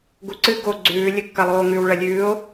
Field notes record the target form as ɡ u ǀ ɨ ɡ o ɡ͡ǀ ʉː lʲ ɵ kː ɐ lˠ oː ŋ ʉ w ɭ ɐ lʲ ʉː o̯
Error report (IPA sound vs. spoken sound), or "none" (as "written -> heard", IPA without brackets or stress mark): none